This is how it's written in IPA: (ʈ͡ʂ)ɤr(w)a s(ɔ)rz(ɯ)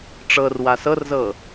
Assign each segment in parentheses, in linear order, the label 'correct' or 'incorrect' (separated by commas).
correct, correct, incorrect, incorrect